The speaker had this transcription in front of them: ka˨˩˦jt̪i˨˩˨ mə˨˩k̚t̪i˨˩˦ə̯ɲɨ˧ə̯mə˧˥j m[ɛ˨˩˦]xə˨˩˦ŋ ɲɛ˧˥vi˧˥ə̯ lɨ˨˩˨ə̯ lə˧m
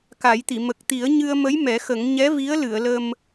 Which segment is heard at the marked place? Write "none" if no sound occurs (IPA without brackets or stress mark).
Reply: ɛ˨˩˦